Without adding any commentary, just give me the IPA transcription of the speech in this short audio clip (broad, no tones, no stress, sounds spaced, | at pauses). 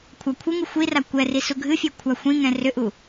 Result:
kʷʰ a kʷʰ ɨ ŋ ɨ xʷ i r a kʷ ɛ r i s u ɡʱ ɨ fʲ ɛ kʷʰ a xʷ ĩ ŋ ɛ̃ r ʏ ʔ u